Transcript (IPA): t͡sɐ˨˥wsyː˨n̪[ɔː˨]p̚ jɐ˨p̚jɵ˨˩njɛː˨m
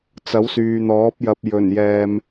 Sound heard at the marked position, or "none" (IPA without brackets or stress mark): ɔː˨˥